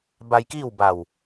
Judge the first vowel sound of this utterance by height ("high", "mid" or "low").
low